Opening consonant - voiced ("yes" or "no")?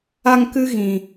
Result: yes